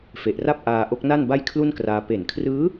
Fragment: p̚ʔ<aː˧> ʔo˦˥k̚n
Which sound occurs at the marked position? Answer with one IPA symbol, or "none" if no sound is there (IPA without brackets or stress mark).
aː˧